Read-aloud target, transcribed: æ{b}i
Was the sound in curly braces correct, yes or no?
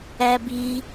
yes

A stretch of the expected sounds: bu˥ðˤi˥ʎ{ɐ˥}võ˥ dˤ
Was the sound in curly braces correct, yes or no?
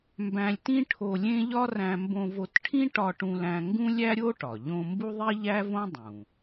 no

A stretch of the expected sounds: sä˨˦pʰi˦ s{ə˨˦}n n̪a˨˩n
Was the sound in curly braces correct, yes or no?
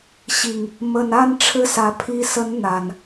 yes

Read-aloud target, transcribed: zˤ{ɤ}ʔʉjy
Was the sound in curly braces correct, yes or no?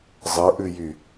yes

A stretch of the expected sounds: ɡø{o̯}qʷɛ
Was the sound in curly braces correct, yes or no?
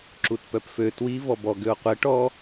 yes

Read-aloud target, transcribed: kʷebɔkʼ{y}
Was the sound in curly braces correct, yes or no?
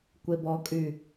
yes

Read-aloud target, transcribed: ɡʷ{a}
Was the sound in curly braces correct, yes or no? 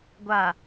yes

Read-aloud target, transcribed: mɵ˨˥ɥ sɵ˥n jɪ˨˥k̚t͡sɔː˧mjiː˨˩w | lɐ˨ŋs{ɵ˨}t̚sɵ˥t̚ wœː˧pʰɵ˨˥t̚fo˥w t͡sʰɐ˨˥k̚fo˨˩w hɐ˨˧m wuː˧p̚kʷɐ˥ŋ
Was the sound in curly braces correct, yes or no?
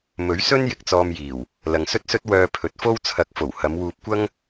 no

